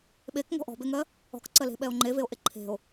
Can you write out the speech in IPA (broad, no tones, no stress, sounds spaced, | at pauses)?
ɓ e k ŋ ɔ̤ ʔ ɔ̤ b e ŋ ɜ | ɔ̤ k ǀ ɜ l e̤ ɓ ɛ o̯ ŋ͡ǃ e v e o̯ ʔ e ǃʰ e̤ o̯